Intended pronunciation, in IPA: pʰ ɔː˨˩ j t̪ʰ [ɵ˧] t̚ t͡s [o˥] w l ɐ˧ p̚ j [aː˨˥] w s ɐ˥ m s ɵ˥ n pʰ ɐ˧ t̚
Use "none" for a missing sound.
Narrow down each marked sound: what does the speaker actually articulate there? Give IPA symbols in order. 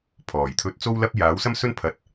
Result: ɵ˧, o˥, aː˨˥

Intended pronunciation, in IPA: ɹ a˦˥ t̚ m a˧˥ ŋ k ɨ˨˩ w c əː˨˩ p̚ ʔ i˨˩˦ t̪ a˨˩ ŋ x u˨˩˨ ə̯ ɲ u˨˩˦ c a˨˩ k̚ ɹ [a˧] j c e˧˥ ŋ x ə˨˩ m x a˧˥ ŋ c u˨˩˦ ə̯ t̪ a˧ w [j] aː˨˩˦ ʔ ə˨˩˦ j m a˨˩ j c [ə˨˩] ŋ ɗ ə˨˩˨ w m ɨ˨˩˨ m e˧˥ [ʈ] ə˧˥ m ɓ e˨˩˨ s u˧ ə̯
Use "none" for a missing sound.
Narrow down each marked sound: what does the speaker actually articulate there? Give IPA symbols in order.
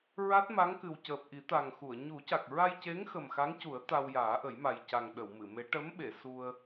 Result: a˧, j, a˨˩, ʈ

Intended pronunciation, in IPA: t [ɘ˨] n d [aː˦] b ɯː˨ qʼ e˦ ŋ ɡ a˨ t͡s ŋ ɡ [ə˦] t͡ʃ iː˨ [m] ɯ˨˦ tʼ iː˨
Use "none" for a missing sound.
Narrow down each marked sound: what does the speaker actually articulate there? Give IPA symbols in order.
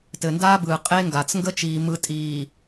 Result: ɘ˨, aː˦, ə˦, m

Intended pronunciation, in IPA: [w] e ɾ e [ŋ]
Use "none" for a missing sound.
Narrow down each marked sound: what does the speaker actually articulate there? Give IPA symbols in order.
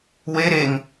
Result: w, ŋ

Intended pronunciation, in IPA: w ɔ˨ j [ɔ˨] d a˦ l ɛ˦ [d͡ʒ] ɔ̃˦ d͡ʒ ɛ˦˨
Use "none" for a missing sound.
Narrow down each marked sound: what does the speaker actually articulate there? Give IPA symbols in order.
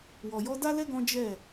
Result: ɔ˧, ɡ

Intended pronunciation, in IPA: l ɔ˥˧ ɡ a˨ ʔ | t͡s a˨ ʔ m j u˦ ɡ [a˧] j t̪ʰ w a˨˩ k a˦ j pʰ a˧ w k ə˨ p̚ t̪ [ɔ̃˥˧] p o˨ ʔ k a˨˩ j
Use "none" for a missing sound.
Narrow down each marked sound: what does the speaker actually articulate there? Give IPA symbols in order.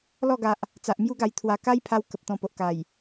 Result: a˧, ɔ̃˧

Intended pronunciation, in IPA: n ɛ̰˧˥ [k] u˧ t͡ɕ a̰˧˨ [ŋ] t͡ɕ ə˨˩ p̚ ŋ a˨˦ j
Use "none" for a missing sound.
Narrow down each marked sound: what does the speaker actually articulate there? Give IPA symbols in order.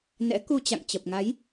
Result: k, ŋ

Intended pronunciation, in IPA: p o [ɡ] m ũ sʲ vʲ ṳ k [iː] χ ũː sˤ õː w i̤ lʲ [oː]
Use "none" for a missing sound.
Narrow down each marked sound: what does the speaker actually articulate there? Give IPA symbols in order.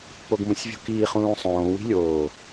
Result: ɡ, iː, oː

